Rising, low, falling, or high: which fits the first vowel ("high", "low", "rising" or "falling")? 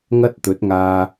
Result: high